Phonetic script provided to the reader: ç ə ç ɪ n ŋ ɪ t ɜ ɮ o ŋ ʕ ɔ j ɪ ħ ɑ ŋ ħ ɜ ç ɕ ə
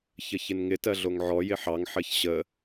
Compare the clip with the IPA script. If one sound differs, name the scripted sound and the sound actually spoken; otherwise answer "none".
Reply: none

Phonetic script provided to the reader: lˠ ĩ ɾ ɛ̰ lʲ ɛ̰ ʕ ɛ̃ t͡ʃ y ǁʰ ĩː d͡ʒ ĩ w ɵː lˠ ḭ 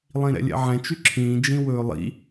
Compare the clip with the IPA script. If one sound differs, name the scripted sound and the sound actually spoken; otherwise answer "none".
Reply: none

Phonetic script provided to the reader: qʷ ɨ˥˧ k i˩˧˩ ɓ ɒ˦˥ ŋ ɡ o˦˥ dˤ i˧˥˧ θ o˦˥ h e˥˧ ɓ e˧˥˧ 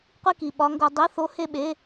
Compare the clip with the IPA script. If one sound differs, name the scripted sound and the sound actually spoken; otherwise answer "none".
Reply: ɨ˥˧ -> i˥˧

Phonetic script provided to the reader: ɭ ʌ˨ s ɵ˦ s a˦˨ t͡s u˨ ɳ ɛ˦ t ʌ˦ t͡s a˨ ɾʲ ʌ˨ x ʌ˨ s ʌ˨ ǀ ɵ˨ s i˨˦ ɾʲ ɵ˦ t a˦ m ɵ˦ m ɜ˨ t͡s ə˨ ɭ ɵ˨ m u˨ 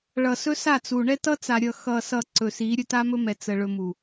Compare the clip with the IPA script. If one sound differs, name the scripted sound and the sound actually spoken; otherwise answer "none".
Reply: ɜ˨ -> ɛ˨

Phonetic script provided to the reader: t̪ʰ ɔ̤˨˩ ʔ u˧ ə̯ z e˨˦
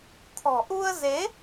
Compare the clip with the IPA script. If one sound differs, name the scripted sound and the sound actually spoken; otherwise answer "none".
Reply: none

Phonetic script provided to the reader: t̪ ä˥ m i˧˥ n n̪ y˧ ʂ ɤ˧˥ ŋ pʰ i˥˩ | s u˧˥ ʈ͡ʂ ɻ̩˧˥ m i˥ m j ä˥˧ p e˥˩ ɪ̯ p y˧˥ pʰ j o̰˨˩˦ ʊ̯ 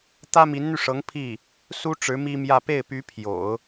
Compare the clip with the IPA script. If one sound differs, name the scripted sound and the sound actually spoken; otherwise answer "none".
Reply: u˧˥ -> u˥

